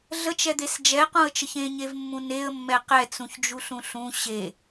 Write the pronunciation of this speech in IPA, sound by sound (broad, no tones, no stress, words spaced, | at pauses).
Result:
ɮət͡ʃɛd̪es d͡ʒɛqũə̯t͡ʃəç ẽɲevmːũ neə̯mːɛ qɛt͡sũçd͡ʒuɬũ ɬũ ɕe